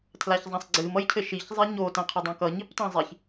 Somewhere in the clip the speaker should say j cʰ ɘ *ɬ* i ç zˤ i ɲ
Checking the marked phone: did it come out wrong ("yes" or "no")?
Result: yes